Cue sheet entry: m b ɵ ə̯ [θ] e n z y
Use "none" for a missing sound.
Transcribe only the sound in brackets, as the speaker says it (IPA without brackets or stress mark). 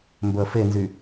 f